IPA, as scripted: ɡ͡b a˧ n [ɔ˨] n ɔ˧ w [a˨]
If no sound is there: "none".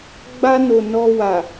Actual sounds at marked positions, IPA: o˨, a˨

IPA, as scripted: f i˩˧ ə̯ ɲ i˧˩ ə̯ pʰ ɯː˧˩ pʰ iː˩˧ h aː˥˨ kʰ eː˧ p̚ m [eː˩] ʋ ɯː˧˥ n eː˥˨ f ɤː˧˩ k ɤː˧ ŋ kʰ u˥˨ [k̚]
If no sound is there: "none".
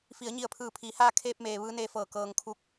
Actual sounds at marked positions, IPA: eː˩, k̚

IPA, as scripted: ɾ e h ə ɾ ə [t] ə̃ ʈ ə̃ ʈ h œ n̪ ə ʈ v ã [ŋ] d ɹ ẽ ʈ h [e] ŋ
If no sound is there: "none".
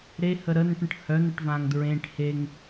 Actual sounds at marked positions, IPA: n, ŋ, e

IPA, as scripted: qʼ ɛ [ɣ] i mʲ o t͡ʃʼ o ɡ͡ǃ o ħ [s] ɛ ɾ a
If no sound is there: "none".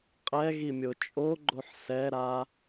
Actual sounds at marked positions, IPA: ɣ, s

